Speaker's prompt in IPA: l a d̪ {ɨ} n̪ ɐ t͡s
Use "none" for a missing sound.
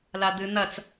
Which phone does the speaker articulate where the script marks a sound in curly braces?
ɨ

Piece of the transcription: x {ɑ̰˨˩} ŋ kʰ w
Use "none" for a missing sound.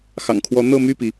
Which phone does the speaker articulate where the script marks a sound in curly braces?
ɑ̰˨˩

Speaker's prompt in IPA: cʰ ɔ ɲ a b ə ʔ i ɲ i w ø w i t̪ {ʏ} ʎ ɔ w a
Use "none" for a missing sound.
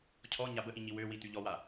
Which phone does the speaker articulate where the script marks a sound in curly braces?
y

